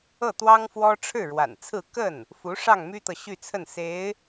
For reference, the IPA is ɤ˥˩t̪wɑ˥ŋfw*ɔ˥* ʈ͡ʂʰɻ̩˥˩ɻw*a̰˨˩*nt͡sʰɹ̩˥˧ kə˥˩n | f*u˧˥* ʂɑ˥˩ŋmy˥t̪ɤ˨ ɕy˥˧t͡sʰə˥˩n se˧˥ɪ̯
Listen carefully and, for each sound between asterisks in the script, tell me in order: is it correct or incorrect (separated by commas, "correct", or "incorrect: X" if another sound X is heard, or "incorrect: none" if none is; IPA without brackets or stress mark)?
correct, correct, correct